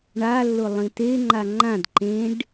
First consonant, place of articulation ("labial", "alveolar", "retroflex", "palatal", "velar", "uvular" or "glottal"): retroflex